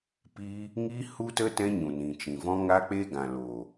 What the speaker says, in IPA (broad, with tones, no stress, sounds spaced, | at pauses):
p iː˦ | ŋ i˦ h u˦ t ə˦ t ɛ̃˦ ɲ ũ˨ n ĩ˨ t͡ʃ ĩ˨ v ɔ̃˦ ŋ a˦ k͡p e˦ ɡ ã˨ l oː˨